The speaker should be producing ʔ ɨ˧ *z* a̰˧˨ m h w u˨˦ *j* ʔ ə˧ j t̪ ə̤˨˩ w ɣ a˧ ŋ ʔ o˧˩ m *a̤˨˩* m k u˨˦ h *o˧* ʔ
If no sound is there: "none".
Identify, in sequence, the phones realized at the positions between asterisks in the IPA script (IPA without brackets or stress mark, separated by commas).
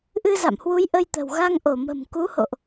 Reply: z, j, ə̤˨˩, o̰˧˨